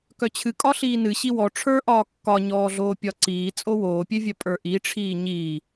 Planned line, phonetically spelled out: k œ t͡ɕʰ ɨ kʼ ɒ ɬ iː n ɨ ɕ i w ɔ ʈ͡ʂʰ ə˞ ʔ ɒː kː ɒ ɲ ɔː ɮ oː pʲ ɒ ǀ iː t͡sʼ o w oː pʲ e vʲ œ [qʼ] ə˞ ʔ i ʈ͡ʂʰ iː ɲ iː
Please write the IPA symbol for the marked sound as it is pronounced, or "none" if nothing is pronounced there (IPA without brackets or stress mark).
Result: pʼ